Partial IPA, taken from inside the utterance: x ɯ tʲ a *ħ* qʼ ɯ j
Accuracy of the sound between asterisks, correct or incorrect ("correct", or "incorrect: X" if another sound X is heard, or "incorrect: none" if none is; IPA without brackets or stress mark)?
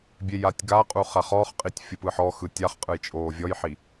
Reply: incorrect: χ